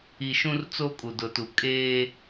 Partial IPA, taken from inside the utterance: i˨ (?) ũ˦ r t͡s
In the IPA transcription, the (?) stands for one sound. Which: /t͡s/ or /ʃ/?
ʃ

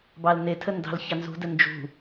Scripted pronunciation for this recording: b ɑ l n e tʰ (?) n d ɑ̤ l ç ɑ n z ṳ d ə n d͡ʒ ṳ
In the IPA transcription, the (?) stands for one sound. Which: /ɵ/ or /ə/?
ə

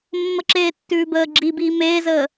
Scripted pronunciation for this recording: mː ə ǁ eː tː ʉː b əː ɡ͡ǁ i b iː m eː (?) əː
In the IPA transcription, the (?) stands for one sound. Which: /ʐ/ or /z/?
z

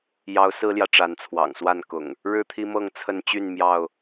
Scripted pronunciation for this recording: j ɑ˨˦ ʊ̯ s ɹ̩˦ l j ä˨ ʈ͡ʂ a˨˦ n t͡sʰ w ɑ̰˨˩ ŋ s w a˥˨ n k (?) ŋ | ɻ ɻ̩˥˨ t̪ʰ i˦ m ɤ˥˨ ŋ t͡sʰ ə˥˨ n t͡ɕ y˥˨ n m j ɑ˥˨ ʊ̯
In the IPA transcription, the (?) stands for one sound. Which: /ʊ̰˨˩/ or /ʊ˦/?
ʊ̰˨˩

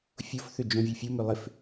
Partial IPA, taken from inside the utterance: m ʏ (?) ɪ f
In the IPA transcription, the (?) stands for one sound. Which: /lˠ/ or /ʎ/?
lˠ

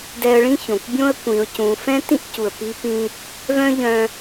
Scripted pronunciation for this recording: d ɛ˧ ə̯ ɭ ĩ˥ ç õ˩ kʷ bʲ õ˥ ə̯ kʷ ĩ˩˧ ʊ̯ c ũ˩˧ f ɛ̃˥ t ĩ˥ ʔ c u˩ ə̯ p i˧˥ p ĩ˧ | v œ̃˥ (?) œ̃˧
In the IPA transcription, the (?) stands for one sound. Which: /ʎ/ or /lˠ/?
ʎ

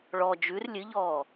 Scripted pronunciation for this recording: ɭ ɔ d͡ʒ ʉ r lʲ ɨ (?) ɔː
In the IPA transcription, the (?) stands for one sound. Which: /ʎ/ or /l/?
ʎ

